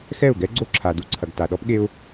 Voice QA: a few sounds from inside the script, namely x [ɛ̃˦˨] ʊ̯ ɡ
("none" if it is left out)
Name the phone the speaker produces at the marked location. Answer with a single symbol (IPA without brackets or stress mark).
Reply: ɛ˦˨